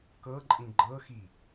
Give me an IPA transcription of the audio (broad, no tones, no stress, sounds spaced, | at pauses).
k ɤ ǃʼ ĩ ɡ͡ǃ ɤ x i